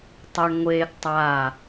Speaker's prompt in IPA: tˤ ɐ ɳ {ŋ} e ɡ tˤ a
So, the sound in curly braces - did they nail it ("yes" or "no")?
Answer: no